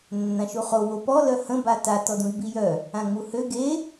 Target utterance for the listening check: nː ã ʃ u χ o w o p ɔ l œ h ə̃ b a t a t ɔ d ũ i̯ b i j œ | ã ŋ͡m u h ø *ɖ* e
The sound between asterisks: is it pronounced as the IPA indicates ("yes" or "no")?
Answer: no